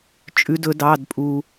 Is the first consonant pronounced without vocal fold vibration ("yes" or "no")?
yes